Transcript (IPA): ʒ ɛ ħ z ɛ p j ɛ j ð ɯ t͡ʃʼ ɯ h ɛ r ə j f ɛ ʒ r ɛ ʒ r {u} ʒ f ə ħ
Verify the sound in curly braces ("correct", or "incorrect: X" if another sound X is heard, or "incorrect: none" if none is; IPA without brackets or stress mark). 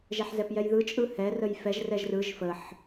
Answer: incorrect: ɯ